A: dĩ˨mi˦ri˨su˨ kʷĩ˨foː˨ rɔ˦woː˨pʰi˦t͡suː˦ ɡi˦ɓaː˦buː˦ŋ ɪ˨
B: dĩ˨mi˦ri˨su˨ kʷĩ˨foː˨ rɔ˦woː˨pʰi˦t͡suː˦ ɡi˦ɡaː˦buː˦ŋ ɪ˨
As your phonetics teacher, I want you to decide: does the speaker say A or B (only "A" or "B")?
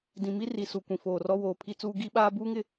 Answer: A